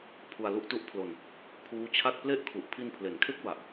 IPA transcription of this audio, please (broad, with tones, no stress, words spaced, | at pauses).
pʰu˧a̯ lu˦˥ʔtu˦˥ʔpʰlo˧n | kʰuː˦˥t͡ɕʰa˥˩t̚ ple˥˩ʔkʰu˨˩ʔ pʰi˧npʰle˩˦nkʰe˦˥k̚ ba˨˩ʔ